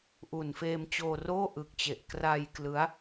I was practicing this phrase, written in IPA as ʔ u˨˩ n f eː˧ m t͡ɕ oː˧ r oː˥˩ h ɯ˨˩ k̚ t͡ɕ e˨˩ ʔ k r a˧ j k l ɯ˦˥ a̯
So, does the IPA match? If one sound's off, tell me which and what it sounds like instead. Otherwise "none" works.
h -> ʔ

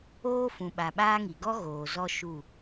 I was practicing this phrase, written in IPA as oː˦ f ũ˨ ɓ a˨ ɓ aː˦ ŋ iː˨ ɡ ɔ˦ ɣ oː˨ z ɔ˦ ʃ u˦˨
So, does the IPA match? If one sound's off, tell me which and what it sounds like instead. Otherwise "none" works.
iː˨ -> i˨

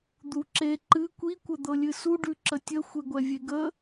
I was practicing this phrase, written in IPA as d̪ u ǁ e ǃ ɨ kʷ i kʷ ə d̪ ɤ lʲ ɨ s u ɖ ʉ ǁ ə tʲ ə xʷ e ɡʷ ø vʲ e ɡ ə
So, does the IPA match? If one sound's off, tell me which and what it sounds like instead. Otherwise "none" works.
ø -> ɛ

